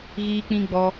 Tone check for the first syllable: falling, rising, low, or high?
high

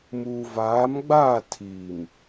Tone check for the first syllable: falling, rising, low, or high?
low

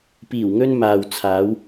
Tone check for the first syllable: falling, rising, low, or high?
low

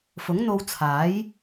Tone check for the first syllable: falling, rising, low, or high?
rising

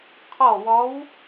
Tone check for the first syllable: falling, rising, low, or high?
falling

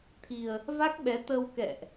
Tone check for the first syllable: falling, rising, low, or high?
low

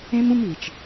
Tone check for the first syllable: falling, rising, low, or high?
high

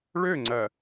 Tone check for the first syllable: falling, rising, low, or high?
falling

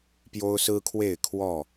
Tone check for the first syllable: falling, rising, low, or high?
high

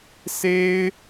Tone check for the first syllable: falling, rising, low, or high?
high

